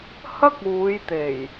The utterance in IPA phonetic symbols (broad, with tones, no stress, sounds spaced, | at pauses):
h ɐ˥ k̚ uː˨˧ j t̪ e˨˩ j